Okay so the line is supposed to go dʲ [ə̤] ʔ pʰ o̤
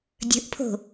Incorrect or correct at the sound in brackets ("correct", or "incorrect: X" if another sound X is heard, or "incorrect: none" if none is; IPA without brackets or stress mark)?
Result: correct